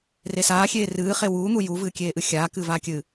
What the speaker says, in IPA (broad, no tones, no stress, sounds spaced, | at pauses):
r e s aː xʲ eː r ɨː χ e w uː n̪ u j u v ɨː kʲ eː ʔ ɨ xʲ aː k ɨː v aː kʲ ɨː